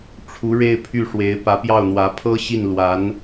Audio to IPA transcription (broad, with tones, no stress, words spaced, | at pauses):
ʈ͡ʂʰu˧˥ɻe˥˧ɪ̯pʰy˥˩ʂwe˧˥ɪ̯ pä˧˥pjɑ˥˩ʊ̯n̪wä˧˥ pʰɤ˥ɕi˥˩nlwa˧˥n